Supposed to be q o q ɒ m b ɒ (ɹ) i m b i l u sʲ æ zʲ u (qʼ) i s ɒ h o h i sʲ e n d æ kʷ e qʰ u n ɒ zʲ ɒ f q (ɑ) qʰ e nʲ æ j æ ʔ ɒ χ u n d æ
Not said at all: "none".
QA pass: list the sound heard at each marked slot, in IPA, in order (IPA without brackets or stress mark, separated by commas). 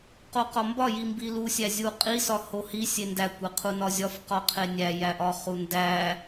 j, qʼ, ɒ